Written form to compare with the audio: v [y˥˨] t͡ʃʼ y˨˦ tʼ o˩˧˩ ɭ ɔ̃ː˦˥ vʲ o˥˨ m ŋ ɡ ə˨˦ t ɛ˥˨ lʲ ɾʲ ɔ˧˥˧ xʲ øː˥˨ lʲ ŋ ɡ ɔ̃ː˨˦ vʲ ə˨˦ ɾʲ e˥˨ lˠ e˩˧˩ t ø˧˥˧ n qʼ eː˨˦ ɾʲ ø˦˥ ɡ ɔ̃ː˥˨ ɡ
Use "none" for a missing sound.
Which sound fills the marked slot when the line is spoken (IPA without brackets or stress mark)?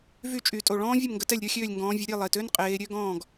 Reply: y˥˨